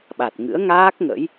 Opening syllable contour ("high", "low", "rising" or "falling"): low